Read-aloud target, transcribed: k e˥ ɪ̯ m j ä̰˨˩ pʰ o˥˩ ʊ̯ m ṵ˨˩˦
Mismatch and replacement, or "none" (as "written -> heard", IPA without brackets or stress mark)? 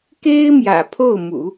none